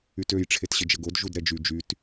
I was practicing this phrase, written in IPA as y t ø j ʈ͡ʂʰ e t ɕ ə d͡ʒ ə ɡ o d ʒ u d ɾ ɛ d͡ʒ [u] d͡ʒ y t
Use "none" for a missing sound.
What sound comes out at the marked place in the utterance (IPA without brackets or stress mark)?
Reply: y